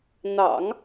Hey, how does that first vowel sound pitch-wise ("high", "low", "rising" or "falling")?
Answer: low